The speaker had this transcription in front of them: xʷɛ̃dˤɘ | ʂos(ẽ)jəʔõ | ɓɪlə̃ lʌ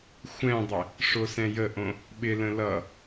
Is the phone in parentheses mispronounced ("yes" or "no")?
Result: yes